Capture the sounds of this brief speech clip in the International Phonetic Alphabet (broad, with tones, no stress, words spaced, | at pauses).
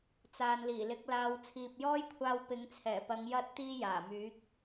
t͡saː˨nliː˨˩lɪ˨˥k̚ laː˨wt͡sʰiː˨p̚jɔː˥jkʷʰaː˧w pɪ˨˧ŋt͡sʰɛː˨˩pɐ˨˧ŋ jɐ˥t̚t̪iː˥jaː˨˩myː˨˥k̚